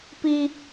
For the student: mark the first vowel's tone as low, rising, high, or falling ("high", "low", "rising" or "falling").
high